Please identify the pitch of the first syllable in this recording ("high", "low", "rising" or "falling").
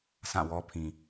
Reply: falling